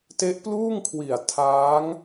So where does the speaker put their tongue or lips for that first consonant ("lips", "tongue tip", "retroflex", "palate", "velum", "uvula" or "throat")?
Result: tongue tip